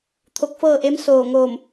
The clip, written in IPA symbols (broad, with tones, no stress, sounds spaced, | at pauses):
t̪ʰ o˧ k̚ f ɤː˥˨ ʔ e˧˥ m s oː˧˩ ŋ oː˧˩ m